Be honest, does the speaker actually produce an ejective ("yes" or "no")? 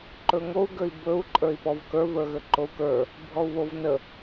yes